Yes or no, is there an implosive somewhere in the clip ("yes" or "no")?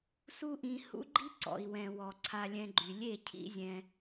no